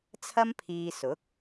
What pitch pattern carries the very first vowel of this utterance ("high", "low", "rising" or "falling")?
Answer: high